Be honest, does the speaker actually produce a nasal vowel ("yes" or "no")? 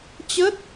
no